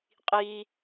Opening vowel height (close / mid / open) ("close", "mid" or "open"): close